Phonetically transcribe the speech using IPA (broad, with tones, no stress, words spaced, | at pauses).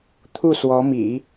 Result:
t̪ʰu˥˩swɔ˧˥mḭ˨˩˦